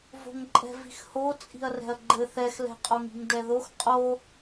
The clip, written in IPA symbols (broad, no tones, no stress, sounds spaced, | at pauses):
v o̤ ŋ ǃʼ ɛ̤ v i̤ x h o t͡sʼ i̤ ɐ̯ r ɛ̤ ɐ̯ ɡ͡ǃ ɘ θ ɛ x l ɛ̤ qʼ o ŋ i̤ ŋ d ɛ ð o x qʼ o